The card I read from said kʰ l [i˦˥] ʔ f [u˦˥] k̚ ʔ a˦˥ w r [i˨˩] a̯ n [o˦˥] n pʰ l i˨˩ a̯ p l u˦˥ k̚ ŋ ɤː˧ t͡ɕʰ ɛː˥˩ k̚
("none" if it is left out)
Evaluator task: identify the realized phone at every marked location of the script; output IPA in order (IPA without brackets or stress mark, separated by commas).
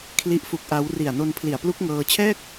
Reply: i˦˥, u˦˥, i˨˩, o˧